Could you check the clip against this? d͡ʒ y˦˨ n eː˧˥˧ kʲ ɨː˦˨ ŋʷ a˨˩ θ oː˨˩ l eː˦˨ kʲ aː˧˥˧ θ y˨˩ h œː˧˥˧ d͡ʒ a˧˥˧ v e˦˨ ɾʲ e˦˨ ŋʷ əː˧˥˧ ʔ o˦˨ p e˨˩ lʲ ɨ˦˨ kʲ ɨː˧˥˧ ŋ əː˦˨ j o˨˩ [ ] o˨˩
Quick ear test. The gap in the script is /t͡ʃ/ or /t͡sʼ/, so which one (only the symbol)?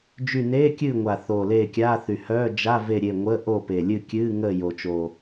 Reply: t͡ʃ